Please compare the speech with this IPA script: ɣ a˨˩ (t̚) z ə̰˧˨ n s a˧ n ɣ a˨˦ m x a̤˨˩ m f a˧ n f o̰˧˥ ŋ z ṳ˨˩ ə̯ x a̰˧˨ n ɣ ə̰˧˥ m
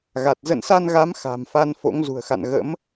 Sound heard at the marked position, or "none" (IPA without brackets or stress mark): t̚